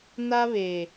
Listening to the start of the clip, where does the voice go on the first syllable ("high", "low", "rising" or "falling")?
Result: high